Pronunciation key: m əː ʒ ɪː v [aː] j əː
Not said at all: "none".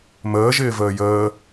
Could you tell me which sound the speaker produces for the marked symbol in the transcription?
əː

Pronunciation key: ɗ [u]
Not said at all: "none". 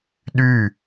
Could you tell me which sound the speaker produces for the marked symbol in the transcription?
y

